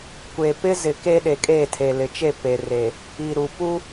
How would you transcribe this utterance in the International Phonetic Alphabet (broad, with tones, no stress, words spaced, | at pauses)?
kʷe˨pɪ˦ zɪ˨ke˦ɗe˨ kʼeː˦˨tʰe˨lɪ˨t͡ʃe˦˨ pe˨re˨ | i˨ɾu˨ pu˦